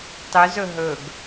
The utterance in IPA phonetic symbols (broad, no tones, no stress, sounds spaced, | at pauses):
tˤ y z ɵ ɦ ɵ ɡ